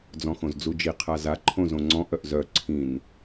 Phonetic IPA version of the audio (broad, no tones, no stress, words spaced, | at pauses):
d͡zɔ̃xõzd͡zud͡ʒi qʰaza ǃʰõzõŋ͡ǀɔ̃ʔ œʔzœ ǀʰĩn